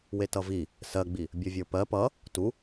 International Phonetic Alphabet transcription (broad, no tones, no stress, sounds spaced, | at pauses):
w e t ʌ v i | s ɜ ɡ͡b i | bʲ ʌ vʲ ə˞ p ɜ p ʌ | t u